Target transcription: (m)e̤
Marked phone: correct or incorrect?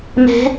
correct